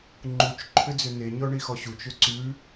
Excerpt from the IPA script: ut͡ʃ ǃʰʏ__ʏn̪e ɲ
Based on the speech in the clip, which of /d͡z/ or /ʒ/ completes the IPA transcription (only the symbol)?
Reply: d͡z